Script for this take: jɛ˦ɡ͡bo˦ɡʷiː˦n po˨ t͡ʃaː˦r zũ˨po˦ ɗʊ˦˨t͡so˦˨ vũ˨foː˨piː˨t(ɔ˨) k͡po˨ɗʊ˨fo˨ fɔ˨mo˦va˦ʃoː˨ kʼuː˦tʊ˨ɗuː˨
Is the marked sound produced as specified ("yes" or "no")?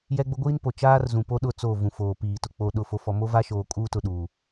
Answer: no